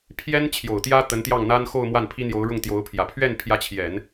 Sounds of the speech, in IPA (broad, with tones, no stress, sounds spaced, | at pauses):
pʰ j ɛ˥ n t͡ɕʰ j o˨˩ ʊ̯ t̪ j ä˥ t̪ ə˧˥ n t̪ j ɑ˥˩ ŋ n̪ a˥ n x o˥˧ ʊ̯ m w a˥˩ n pʰ i˥ n̪ j o˧˥ ʊ̯ ɻ ʊ˥˩ ŋ t̪ j o˧˥ ʊ̯ pʰ j ä˨˩ pʰ ɥ ɛ˥˩ n pʰ j ä˧˥ t͡ɕʰ j ɛ˨˩˦ n